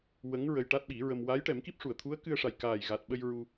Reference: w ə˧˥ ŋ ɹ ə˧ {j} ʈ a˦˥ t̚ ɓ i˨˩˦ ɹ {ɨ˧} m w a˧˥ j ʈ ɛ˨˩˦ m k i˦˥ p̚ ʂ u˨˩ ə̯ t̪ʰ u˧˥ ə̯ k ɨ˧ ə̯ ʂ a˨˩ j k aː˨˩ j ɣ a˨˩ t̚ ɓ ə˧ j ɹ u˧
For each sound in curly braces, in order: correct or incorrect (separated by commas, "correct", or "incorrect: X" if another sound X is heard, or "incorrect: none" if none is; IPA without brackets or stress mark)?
correct, incorrect: ə˧